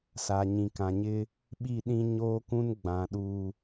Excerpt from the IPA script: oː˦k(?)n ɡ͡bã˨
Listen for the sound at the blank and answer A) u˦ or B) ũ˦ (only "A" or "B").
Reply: B